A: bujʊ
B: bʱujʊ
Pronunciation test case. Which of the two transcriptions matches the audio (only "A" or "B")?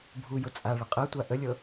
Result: B